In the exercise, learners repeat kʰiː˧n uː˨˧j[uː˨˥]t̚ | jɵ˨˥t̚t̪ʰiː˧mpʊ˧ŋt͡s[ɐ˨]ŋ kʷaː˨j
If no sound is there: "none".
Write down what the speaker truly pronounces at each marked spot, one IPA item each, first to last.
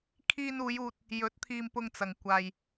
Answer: uː˧, ɐ˨

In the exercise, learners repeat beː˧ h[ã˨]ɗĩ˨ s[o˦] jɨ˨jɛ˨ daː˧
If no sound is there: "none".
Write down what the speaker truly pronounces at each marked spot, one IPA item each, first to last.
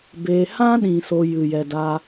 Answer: ã˦, o˦

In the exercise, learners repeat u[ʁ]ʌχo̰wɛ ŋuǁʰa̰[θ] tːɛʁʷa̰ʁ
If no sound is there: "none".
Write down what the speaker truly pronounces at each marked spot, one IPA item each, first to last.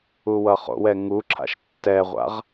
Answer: w, ʃ

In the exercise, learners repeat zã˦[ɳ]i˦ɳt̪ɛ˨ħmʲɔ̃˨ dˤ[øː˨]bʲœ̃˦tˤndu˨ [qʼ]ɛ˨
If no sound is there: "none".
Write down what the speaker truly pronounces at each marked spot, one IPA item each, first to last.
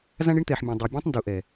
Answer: ɳ, ø˨, ʔ

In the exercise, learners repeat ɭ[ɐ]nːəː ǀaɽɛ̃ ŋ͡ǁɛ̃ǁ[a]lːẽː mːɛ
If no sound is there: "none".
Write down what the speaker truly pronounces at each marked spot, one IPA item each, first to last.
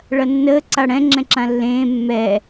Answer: ɐ, ã

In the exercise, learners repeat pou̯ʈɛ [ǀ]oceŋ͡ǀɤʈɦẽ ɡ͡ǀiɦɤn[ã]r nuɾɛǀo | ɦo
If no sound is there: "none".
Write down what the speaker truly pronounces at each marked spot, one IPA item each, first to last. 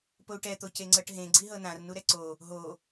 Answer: t̪, ã

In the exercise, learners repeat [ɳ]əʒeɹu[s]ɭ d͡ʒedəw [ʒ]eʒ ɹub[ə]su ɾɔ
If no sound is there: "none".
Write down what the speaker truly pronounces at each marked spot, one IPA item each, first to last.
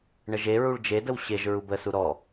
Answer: ɳ, none, ɕ, ə

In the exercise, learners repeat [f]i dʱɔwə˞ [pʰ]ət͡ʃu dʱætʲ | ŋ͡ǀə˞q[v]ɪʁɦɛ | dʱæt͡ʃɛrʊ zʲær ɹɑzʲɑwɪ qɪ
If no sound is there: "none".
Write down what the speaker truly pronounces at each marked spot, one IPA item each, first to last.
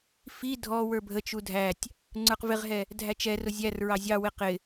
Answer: f, bʱ, v

